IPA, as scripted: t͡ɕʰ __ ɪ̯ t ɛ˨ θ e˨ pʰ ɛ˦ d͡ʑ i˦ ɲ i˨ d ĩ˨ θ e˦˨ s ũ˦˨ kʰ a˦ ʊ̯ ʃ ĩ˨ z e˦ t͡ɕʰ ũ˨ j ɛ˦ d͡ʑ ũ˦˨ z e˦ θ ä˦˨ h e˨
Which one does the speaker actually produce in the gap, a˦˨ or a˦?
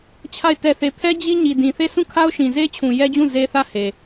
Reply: a˦˨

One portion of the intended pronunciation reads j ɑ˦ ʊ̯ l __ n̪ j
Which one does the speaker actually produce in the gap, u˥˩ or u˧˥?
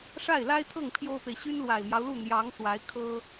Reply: u˥˩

